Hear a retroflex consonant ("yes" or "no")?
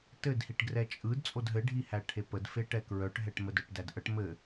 yes